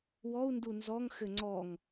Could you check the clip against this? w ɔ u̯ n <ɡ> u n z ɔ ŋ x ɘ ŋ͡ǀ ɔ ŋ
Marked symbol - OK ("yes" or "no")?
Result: no